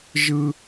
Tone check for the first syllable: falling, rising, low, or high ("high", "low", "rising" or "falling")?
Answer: high